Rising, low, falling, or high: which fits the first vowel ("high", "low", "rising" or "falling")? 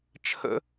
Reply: high